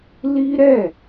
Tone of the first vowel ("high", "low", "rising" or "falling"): high